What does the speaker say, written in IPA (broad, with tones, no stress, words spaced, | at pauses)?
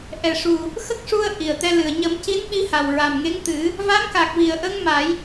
ʔɛ˨˩ʂu˨˩ | xə˦˥k̚ʂu˧ə̯ ʔi˨˩ə̯t̪ɛ˧lɨ˨˩ə̯ ɲə˨˩˦mci˧˥nɓi˧ha˨˩w ɹa˨˩mŋe˧˥ŋt̪ɨ˨˩˦ | va˧˥mka˨˩k̚vi˨˩ə̯ ʔə˧ŋ ma˨˩˦j